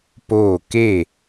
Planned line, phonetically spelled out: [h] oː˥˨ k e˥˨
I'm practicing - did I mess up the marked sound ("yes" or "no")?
yes